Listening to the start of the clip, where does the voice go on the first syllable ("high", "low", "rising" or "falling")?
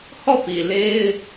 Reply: falling